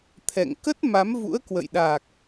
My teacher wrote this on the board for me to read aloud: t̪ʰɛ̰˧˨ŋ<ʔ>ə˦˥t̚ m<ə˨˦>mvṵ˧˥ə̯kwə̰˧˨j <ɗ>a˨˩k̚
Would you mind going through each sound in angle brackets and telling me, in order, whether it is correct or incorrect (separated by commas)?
incorrect, incorrect, correct